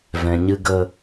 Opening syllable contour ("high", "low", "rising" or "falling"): low